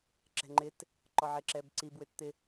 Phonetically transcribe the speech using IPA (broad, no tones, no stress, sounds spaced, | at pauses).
ǁ ɛ̤ ŋ͡ǃ ɪ t | ǃ ɔ ʕ e ǁ ɛ b ǀ i b w ʏ t t̪ ɪ